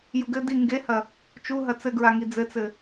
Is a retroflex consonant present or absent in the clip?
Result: absent